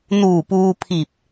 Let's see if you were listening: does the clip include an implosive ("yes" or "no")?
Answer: no